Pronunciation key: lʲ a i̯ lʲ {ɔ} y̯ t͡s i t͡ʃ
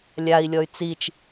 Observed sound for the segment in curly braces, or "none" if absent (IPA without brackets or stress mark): ɔ